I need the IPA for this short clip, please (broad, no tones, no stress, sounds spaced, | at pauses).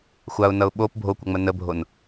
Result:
xʷ a ʊ̯ n ʌ ʊ̯ ɓ o p bʱ o kʷ ʌ ŋ͡m ə n ə bʱ o n